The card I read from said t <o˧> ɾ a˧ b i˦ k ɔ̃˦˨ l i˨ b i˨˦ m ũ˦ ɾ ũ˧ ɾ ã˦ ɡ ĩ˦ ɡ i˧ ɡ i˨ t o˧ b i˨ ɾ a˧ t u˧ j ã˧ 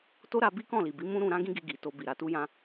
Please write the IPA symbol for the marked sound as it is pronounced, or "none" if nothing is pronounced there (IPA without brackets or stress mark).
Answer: o˦